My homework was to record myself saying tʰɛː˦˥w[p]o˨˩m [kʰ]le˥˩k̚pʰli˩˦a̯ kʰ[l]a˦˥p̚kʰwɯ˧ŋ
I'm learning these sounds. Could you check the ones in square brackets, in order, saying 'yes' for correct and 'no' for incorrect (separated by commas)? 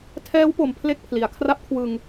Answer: yes, no, no